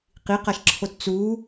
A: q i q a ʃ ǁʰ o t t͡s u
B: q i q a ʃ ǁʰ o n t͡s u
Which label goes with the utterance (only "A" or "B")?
A